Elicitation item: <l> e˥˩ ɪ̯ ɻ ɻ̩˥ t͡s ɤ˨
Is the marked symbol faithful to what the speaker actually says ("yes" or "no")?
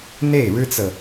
no